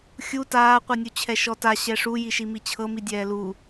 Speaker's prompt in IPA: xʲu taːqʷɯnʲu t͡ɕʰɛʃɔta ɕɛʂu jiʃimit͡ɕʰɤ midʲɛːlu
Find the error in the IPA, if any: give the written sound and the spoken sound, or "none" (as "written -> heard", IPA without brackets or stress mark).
none